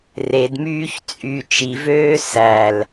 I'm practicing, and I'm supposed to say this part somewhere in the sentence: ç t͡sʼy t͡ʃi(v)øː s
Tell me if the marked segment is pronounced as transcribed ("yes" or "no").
yes